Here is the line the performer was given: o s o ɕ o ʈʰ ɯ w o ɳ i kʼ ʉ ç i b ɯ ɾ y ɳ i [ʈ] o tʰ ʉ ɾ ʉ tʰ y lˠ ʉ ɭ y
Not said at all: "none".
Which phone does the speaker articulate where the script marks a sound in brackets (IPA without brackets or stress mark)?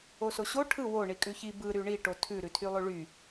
ʈ